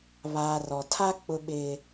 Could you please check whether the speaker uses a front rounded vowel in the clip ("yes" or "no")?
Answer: no